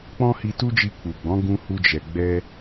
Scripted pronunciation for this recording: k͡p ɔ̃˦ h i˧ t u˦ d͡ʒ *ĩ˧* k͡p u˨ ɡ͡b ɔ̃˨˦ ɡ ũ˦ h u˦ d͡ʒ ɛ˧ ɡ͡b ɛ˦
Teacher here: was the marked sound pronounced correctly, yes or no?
no